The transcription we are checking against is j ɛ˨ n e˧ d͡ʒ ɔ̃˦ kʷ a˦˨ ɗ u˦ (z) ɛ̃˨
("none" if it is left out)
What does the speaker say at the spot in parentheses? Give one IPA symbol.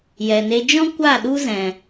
z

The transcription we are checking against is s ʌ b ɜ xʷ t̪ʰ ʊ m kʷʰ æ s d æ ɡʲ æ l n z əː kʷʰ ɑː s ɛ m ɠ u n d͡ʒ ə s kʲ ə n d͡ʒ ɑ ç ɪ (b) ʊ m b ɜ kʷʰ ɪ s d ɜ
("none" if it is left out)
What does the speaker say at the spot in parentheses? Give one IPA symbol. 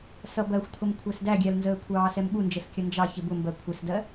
b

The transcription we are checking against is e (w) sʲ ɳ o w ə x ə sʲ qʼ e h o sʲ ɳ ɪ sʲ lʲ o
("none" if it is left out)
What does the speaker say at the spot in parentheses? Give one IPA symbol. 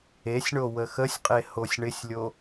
none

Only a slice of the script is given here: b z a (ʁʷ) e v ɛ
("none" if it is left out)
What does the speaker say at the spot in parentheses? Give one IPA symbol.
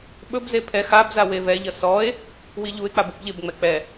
w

